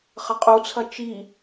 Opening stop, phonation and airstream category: ejective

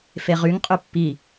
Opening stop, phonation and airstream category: ejective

